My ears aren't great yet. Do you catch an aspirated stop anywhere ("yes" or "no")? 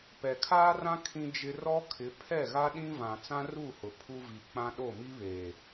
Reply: yes